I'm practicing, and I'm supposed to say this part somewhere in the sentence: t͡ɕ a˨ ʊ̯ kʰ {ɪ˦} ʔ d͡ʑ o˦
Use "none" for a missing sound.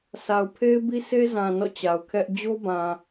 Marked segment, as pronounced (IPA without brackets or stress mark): ɛ˦